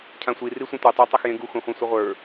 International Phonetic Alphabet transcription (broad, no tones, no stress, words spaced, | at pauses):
cʰãsʷi risʷẽtʷe tˤə˞tˤɐxjẽɡu xũχʷɛ̃sʷəʁʷə˞